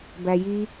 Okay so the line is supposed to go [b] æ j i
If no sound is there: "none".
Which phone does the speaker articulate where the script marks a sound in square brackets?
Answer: b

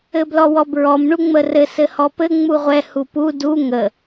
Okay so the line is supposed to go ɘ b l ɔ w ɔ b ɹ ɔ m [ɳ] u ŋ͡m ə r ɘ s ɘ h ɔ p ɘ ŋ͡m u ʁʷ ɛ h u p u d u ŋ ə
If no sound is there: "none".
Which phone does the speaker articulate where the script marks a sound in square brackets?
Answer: ɳ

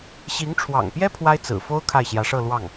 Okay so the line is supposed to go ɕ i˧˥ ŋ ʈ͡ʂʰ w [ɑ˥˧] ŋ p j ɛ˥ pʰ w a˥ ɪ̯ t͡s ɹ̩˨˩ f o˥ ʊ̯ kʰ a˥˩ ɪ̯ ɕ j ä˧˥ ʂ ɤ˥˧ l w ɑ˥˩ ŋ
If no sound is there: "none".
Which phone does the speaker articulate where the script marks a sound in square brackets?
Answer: ɑ̰˨˩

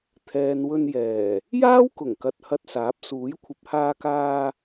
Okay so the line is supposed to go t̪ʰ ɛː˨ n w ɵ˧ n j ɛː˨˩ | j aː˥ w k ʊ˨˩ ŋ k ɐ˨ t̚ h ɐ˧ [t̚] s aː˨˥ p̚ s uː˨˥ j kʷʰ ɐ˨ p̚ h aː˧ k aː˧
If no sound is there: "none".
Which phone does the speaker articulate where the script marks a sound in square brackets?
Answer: t̚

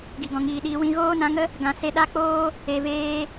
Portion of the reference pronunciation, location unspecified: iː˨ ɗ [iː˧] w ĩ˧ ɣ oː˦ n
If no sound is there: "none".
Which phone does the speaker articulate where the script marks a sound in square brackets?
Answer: iː˧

